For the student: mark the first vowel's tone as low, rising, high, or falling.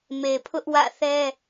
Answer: low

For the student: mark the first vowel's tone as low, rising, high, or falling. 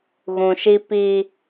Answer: low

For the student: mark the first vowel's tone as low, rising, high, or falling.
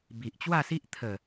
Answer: low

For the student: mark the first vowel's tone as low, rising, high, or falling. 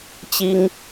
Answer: high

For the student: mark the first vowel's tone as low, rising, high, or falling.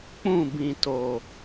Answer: falling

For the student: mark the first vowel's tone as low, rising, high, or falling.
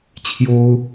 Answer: high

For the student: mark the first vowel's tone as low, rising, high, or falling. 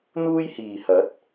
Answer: high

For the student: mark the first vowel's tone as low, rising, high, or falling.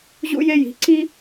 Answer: high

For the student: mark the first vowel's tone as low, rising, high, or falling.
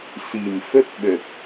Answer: low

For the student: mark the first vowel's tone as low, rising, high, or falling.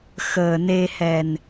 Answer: low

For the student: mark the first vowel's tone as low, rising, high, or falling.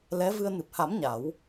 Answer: rising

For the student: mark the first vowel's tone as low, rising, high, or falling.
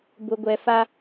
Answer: low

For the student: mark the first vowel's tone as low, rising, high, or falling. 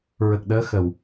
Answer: low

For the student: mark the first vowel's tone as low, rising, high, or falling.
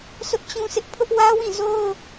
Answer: high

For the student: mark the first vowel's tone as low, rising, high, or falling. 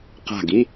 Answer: falling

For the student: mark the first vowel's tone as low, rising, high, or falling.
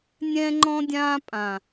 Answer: high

